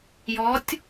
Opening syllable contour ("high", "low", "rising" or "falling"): rising